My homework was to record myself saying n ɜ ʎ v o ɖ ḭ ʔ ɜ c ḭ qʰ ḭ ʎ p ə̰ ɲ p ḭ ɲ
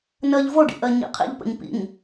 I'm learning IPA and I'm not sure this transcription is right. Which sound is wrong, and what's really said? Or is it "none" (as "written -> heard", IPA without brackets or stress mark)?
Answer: c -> ɲ